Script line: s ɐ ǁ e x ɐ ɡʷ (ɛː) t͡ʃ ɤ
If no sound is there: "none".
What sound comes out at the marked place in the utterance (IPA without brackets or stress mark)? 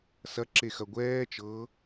ɛː